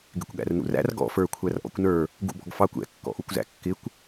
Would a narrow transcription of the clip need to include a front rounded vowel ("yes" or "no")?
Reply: no